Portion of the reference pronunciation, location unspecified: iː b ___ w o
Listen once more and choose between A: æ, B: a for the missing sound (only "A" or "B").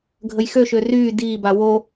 B